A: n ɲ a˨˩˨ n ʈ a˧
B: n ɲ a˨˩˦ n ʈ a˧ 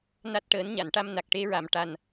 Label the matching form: A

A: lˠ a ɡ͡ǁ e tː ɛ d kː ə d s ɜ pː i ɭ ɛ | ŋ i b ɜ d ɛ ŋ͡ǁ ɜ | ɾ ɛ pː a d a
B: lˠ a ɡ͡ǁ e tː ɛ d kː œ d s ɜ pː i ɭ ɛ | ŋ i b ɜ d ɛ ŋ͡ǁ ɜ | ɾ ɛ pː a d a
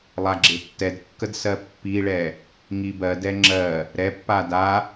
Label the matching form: A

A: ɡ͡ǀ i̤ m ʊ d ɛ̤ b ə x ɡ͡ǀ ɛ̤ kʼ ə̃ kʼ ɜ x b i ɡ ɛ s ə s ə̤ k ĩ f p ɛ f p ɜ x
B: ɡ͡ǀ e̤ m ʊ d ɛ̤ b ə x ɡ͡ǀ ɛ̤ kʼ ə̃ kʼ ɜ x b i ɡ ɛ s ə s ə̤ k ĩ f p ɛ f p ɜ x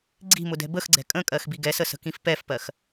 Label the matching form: A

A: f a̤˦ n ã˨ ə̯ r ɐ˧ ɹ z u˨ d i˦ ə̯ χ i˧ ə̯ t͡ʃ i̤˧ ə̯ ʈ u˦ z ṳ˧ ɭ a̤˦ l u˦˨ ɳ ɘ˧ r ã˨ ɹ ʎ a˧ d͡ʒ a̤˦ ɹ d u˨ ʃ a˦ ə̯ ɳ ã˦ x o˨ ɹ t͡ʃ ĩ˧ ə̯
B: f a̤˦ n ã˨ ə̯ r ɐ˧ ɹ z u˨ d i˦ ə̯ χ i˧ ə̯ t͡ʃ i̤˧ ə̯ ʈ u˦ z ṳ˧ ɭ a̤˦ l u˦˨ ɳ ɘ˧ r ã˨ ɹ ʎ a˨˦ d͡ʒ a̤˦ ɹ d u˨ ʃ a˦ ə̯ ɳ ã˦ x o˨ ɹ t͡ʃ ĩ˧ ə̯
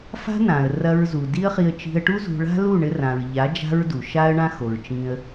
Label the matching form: B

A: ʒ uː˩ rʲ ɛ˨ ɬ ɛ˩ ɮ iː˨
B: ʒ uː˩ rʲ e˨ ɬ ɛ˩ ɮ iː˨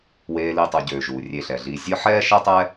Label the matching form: B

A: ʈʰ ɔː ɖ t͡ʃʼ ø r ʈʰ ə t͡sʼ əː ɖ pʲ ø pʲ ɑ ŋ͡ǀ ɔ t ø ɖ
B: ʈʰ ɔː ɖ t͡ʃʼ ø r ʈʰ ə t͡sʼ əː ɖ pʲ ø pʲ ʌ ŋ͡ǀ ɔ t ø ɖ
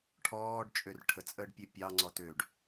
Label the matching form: A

